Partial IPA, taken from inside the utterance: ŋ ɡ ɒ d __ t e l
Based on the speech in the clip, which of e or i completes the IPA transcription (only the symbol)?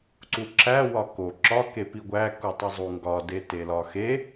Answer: e